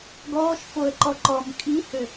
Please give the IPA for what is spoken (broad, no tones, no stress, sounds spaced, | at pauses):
ɡ ɔː ʃ f o ə̯ ǃ ɔ ǃ ɔ m kʼ i h ø